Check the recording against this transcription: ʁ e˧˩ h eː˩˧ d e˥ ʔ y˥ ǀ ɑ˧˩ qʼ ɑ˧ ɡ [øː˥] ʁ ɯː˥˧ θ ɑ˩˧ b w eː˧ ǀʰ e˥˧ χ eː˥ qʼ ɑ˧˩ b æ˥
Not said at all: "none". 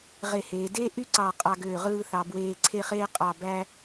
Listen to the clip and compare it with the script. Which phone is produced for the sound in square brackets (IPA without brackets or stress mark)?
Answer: øː˧˩